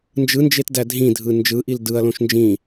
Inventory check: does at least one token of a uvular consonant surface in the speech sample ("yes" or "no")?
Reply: no